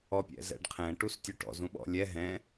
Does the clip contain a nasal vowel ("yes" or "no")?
yes